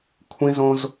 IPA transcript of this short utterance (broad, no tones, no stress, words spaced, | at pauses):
kʷʰĩzõz